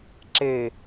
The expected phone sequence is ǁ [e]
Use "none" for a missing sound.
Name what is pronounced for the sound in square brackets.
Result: e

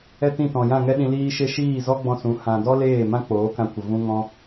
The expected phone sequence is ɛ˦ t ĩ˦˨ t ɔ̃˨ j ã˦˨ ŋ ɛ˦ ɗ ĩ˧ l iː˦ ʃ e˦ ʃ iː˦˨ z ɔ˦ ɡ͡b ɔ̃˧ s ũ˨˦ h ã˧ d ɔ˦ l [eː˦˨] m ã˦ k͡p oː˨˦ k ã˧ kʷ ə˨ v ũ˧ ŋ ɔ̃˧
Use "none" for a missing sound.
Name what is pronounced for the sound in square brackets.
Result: eː˦˨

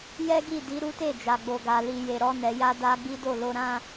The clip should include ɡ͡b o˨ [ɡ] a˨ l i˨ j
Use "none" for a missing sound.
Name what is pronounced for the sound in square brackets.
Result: ɡ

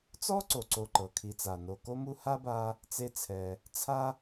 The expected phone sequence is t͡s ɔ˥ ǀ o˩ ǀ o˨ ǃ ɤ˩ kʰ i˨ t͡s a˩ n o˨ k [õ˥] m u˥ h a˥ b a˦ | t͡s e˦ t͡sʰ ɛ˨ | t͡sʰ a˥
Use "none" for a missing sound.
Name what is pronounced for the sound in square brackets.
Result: o˥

